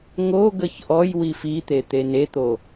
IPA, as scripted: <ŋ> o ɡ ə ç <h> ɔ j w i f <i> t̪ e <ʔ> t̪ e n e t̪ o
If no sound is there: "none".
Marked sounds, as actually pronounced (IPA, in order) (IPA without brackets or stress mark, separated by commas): ŋ, ʔ, i, none